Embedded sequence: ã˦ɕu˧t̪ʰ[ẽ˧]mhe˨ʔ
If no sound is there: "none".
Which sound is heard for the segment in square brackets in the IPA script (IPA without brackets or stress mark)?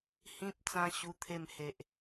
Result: e˧